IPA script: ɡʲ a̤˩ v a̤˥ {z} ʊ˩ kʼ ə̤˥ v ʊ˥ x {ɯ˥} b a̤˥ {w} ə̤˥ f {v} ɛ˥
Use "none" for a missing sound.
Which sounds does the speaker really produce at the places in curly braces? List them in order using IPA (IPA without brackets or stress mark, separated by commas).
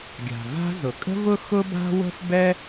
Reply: z, ʊ˥, w, b